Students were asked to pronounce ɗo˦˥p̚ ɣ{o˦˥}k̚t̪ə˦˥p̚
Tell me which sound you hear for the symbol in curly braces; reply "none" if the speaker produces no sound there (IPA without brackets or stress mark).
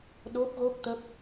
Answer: o˦˥